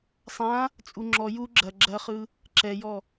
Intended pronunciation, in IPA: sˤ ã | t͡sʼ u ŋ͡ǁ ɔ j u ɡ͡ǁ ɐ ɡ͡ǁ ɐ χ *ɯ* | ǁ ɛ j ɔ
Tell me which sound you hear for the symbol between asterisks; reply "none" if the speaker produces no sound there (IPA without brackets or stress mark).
ɯ